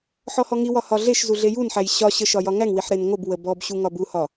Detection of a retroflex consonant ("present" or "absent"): absent